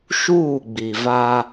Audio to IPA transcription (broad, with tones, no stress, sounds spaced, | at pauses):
ʃ uː˦˨ ɡ͡b i˨ v a˦